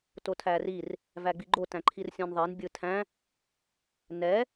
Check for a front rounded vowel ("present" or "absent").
absent